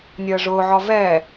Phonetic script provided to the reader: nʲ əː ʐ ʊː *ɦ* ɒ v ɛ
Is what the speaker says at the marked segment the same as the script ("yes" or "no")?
no